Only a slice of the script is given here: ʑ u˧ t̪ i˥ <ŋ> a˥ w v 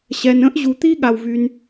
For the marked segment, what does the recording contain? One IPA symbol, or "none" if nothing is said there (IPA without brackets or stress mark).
ɠ